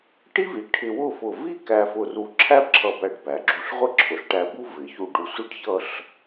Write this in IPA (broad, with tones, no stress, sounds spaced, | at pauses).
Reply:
ʈ i˥ v i˩˧ ʈʰ ɪ˧ w ʊ˥˧ f ʊ˧˩ v i˥˧ k æ˧ f ʊ˧ r u˧ ǁʰ æ˥ b ǁʰ ʌ˧˩ b æ˧˩ ɖ b æ˩˧ ɡ͡ǁ u˧˩ ɬ ʁʷ ɪ˥ ǁʰ ʊ˩˧ ɬ ʈ æ˧˩ b u˥ v ɪ˩˧ ç u˧˩ ɖ u˧˩ sʷ i˥ ɖ ç ʌ˥˧ ɬ